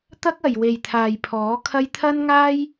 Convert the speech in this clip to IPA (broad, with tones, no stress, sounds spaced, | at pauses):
t̪ ɐ˥ k̚ ɐ˨ j w e˨ j t̪ʰ aː˨ j pʰ ɔː˨˥ kʰ ɐ˥ j t̪ʰ ɐ˥ n ŋ aː˥ j